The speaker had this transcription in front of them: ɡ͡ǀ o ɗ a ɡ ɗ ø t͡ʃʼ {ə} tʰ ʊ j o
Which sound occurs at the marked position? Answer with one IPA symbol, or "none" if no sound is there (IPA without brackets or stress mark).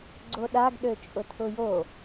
ʊ